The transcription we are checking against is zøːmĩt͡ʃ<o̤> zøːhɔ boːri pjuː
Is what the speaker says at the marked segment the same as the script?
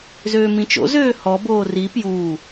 no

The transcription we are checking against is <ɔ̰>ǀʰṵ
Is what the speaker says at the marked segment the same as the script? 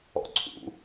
yes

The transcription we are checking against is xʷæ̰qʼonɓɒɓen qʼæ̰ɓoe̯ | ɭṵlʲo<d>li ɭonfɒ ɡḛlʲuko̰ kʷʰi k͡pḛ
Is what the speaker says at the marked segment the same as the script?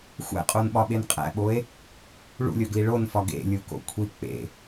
no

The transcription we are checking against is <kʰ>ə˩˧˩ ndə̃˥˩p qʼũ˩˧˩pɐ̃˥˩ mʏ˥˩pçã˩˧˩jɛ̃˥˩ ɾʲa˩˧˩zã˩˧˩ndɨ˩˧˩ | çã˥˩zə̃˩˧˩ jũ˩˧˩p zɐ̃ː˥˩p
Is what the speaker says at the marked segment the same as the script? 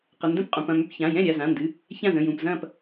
no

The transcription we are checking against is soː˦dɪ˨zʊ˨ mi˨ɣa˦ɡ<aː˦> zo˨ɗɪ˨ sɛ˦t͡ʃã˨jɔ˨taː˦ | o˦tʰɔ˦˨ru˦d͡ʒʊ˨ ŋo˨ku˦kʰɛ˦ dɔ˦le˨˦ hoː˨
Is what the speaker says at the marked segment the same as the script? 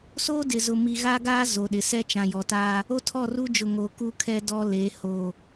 yes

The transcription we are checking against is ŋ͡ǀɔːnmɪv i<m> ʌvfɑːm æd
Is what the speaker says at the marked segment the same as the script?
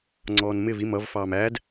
yes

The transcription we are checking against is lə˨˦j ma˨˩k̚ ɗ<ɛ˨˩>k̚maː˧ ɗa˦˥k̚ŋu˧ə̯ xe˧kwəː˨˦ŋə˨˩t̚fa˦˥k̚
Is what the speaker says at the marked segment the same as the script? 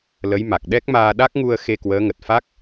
no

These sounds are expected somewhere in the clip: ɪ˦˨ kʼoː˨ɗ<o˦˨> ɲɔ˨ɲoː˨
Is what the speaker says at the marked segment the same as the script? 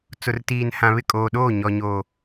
no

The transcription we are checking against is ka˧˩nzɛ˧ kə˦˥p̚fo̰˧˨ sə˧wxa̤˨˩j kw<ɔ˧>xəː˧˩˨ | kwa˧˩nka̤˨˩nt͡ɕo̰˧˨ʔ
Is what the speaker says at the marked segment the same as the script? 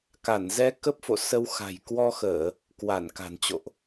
yes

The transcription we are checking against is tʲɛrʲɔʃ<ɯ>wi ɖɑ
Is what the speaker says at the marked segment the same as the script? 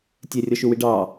no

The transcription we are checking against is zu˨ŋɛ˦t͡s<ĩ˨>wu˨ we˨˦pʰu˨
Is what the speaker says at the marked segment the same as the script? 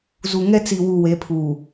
no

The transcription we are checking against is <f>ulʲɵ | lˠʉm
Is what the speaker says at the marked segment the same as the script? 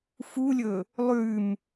yes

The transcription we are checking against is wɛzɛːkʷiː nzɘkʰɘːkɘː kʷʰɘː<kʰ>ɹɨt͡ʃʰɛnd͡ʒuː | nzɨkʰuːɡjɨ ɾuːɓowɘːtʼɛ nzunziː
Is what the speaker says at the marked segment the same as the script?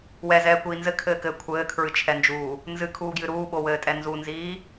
yes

